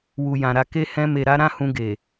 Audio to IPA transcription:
w u˨ j ã˨ ɾ a˧ k e˧ h ɛ̃˧ m e˨ ɾ a˧ ɾ ã˦ h ũ˧ ɡ e˨

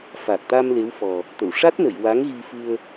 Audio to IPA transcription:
f a˨˩ k̚ t̪ a˧ m l e˧˥ w f ɔ˨˩ | t̪ ə˨˩˨ w ʂ a˦˥ t̚ n ə˨˩˨ j w a˧˥ ŋ ɣ i˧ f ɨ˧ ə̯

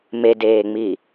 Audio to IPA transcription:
m e d eː ŋ͡m i

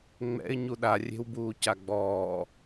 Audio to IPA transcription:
ŋ͡m ɛ̰ ɪ̯ ɲ u ɗ a rʲ e̤ w b uː c a ɡ͡b ɔː

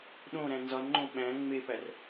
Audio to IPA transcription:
ɗ õ ɾ æ̃ n z ɒ n ŋ͡ǃ õ ɓ æ̃ ŋ͡m e p æ r

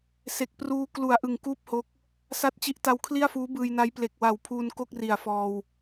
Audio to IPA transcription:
s e˨˩ k̚ p r uː˧ k l u˨˩ a̯ ʔ ɯ˨˩ ŋ k uː˥˩ p̚ h o˦˥ k̚ | s a˦˥ t̚ t͡ɕ i˦˥ ʔ t a˧ w kʰ l i˥˩ a̯ f uː˦˥ b ɯː˧ j n a˦˥ j p l e˨˩ k̚ w a˨˩ w pʰ uː˧ n k o˥˩ k̚ r i˨˩ a̯ f ɔː˧ w

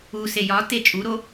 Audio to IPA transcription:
u s e j ɒ t e t͡ʃʼ u ɾ o

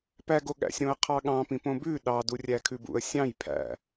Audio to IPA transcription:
p æ ɡ o ɠ æ̰ sʲ ɾ õ ə̯ qʰ ɑ ɠ ɑ̃ p ĩ p õ b ʉ ɗ ɑ d u rʲ æ kʰ ʉ b ṵ ə̯ sʲ ɑ̃ j pʰ æ̰

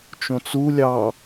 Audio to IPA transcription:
t͡ʃ õ t͡s u lʲ ɑ

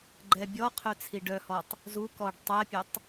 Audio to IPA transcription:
ɡ͡ǃ ɛ bʲ ɔ qʰ œ t͡sʰ i ɖ œ h ɔ tˤ | z u k ɔ ɖ tˤ ɛ pʲ ø tˤ

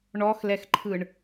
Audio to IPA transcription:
ɳ ɔ x l ɛ x ǃʰ ɯ ɳ

